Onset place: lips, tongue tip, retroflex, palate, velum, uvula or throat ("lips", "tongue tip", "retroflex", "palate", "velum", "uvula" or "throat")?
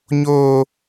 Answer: palate